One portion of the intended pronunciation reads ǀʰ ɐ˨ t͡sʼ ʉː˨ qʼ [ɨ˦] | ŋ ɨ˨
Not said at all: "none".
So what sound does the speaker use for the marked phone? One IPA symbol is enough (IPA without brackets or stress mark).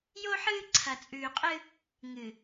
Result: ɨ˦